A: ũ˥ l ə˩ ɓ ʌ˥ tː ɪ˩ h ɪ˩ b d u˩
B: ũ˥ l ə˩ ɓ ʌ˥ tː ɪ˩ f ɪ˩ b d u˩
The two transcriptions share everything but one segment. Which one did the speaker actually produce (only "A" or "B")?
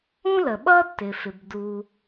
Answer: B